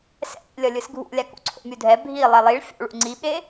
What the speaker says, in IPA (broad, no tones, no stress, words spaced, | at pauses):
sɛ̰ʔḭ lʲʌlʲɯsɡʱṵlʲa kṵǀʰo̰mʲudʱɛ bʱi lˠɛlˠiɭ fʲo̰ɭṵ ŋ͡ǀiɓe